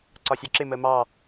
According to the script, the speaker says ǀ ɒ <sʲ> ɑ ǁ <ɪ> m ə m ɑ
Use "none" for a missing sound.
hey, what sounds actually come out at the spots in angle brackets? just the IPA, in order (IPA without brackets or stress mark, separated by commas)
sʲ, ɪ